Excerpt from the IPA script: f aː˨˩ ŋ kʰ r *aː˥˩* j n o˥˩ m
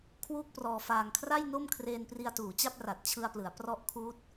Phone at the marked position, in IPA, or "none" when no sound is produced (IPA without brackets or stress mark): a˥˩